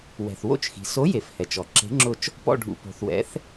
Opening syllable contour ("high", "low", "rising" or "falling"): low